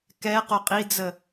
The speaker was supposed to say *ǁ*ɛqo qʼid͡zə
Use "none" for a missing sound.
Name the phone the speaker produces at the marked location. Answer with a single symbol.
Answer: k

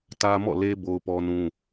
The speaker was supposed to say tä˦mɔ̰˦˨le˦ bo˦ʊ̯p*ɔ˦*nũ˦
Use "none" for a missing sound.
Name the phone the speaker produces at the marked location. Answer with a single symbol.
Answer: ɔ˦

